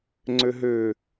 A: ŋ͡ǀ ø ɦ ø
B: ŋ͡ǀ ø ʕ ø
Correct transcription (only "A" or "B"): A